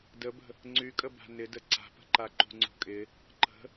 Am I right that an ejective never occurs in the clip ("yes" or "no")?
no